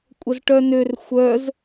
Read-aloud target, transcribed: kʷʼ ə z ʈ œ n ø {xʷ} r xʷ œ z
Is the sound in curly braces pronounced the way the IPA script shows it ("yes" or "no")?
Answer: no